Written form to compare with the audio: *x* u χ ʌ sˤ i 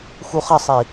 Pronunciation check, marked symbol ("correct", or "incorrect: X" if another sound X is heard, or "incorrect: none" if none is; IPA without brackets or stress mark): correct